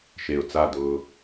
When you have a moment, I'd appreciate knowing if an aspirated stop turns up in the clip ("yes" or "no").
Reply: no